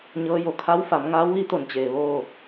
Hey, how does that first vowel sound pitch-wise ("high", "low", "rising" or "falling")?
rising